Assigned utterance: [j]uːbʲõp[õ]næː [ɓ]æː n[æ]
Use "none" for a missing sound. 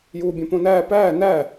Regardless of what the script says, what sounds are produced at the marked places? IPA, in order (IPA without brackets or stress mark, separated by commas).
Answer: j, õ, p, æ